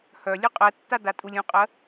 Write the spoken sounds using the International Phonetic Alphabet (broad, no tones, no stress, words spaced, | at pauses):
hœ lʲœqʼɜtːa datʼulʲũqʼɜ